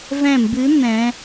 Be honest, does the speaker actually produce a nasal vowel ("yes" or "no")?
yes